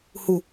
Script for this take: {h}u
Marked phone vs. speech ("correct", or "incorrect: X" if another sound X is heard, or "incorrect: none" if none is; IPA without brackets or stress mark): correct